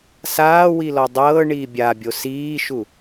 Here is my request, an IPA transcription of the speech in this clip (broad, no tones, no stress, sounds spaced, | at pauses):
s aː w i l ɔ dˤ ɤː ɳ iː bʲ a bʲ o s iː ʃ u